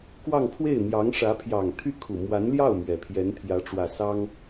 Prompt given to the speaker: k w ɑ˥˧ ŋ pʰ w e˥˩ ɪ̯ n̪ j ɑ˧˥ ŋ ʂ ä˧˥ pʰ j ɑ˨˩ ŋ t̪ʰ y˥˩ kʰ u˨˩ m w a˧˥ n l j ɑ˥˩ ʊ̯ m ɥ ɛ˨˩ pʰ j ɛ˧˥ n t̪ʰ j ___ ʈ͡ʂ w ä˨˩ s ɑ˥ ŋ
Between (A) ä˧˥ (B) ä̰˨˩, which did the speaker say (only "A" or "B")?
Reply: A